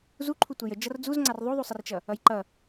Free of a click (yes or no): no